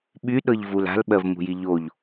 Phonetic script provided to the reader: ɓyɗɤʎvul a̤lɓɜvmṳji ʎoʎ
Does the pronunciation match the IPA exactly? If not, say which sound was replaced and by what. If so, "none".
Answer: none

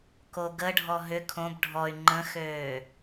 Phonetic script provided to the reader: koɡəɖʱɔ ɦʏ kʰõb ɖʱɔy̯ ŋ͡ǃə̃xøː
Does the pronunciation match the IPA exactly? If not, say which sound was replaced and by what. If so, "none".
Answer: none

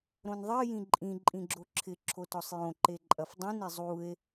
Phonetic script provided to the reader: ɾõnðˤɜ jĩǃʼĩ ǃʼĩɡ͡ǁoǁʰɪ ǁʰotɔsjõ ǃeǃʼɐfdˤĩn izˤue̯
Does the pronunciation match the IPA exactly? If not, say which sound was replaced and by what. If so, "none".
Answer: s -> sˤ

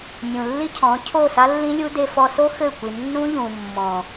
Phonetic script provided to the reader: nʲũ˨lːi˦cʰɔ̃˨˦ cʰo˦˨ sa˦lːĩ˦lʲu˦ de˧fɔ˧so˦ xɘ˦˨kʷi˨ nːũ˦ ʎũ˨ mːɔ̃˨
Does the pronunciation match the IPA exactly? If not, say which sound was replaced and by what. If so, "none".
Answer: none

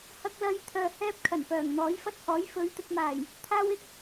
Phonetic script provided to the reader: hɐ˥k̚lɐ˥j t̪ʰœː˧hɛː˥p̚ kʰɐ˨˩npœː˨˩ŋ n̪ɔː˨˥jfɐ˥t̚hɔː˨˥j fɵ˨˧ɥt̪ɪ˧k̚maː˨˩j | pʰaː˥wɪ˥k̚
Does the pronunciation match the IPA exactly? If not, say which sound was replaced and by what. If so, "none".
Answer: pʰ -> t̪ʰ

